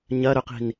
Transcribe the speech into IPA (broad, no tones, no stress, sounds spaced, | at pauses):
ɲ ɐ ɾ ɵ q i̤ n